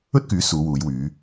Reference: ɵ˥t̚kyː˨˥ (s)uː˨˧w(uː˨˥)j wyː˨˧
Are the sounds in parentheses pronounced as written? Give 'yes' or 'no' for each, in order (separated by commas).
yes, no